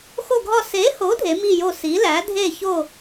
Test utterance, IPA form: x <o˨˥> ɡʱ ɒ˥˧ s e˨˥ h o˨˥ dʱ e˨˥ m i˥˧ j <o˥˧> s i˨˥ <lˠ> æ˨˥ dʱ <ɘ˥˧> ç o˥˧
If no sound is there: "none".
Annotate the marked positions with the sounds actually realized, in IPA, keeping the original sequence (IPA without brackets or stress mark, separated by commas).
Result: o˥˧, o˥˧, l, e˥˧